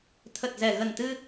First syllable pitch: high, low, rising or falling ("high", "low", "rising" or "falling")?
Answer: low